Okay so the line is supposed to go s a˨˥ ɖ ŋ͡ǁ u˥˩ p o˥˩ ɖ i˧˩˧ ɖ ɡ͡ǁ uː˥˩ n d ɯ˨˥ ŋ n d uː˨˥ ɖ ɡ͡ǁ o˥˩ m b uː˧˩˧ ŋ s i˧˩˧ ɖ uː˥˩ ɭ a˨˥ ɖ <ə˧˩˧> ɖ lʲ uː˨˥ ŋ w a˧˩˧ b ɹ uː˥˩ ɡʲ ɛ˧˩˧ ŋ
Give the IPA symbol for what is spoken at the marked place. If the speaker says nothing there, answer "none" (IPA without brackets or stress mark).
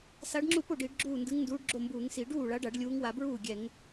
a˧˩˧